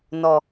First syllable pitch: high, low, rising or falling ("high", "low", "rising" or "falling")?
low